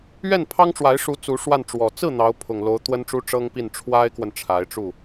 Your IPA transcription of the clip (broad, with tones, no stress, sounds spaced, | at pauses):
ɥ ɛ˥˩ n pʰ ɑ˥ ŋ ʈ͡ʂ w a˧˥ ɪ̯ ʂ u˧˥ t͡s u˧˥ ʂ w a˥˩ n ʈ͡ʂ w ɔ˨˩ t͡s ɹ̩˥˩ n̪ ɑ˧˥ ʊ̯ pʰ ʊ˨˩ ŋ l o˧˥ ʊ̯ t̪ w ə˥ n ʈ͡ʂ u˥ ʈ͡ʂ ɤ˥ ŋ p i˥˩ n ʈ͡ʂʰ w a˥ ɪ̯ k w ə˨ n ʈ͡ʂʰ a˧˥ ɪ̯ ʈ͡ʂ u˥˩